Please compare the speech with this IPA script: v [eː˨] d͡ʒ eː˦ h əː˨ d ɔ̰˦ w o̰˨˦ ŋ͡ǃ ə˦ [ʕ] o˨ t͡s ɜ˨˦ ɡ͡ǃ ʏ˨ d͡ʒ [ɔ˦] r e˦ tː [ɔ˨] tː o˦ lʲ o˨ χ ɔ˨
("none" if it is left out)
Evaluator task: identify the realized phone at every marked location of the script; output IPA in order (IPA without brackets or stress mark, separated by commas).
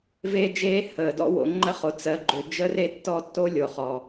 eː˦, χ, ə˦, ɔ˦˨